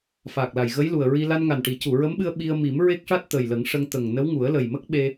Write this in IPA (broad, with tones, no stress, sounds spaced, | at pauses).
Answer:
f aː˨˩ k̚ l a˨˩ j ɣ ə˧˥ j l u˨˩ ə̯ ɹ i˧ l a˧ n ŋ a˨˩ n ʈ i˨˩˦ c u˨˩˨ ɹ ə˧˥ m ɓ ɨ˧ ə̯ ɓ i˧ ə̯ m i˨˩˦ m ɹ e˦˥ k̚ ʂ a˦˥ t̚ t̪ ə˨˩ j l ə˨˩˦ ŋ ʂ ə˧ ŋ t̪ ə˨˩ ŋ n ə˧˥ w ŋ u˨˩˦ ə̯ l ə˨˩ j m ə˦˥ k̚ ɓ e˧